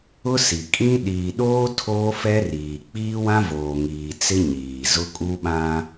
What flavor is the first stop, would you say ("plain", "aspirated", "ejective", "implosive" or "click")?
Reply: ejective